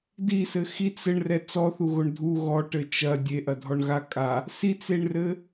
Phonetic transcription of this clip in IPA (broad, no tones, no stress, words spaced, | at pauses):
disɘ xit͡s ɘɳrɛ t͡sɔθuɣoɳ dʱu ɣɔʈɘ t͡ʃɐ dʲeʔɐdʱɔɳɣa kʼa | sit͡seɳrɘ